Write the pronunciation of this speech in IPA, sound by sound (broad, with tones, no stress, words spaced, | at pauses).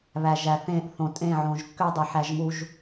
βæ˨ʒæ˨θẽ˦˨ʔθõ˨ tʼẽ˦˨ʕõ˨ʒkːʏ˦dˤə˨ ħæ˦ʒmu˦ʒ